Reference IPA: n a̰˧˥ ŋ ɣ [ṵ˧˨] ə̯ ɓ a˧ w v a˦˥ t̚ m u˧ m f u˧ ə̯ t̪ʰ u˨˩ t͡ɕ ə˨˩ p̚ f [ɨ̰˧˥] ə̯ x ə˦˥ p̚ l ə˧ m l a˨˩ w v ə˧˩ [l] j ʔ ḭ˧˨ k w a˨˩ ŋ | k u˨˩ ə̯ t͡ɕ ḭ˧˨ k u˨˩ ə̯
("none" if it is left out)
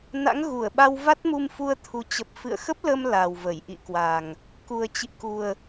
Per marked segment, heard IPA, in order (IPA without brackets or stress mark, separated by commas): u˧˩, ɨ̰˧˨, none